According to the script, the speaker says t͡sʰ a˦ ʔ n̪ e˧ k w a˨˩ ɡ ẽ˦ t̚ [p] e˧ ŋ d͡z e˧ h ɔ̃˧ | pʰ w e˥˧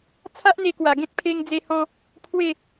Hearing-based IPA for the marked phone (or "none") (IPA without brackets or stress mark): pʰ